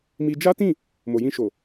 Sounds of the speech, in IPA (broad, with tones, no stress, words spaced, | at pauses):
mi˧ d͡ʒa˦tĩ˦˨ | mo˨jĩ˧ʃo˨